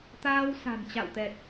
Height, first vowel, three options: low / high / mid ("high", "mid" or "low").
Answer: low